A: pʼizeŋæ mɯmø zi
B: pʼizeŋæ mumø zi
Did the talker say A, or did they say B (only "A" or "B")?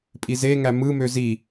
A